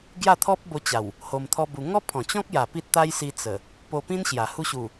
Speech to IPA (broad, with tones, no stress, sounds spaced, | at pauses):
ɡ j a˥˧ t̪ʰ ɔ˦ p̚ b o˧ t͡ɕ a˨˩ w | h o˧ m t̪ʰ ɔ˦ b u˧ ŋ ɔ˦ pʰ ɔ̃˨˩ t͡ɕ ɔ̃˦ k̚ j a˨˩ p i˦ t̚ t̪ a˦ j s i˧ t͡s ə˨˩ | p o˧ p ĩ˦ n ɕ j a˨˩ h u˧ ɕ u˨˩